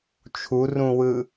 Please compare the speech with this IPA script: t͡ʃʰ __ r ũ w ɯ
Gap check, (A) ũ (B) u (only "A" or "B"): B